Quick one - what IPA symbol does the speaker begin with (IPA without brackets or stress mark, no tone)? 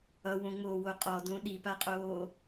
ʌ